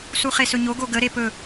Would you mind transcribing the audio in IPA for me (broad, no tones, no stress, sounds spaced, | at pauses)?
s u χ e s ɵ ɲ o ɡ o ɡ ə ɾ e p ɵ